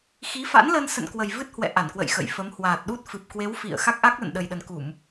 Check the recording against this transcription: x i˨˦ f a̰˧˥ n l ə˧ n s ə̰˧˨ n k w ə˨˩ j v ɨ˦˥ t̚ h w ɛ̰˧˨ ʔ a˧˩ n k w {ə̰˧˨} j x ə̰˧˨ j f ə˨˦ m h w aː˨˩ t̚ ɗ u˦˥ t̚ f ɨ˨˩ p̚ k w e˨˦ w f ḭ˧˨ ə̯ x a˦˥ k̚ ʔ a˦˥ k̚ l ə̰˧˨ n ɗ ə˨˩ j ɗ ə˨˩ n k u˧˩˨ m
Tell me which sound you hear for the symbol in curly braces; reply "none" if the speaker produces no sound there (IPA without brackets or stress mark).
ə̰˧˨